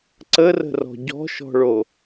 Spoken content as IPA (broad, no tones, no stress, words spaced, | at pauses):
ǀərə̤rɔ̤ ɟɔ̤ʃɔ̤ɭo